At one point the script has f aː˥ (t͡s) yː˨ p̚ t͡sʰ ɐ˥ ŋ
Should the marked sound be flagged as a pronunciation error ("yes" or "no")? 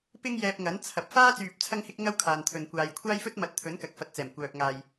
no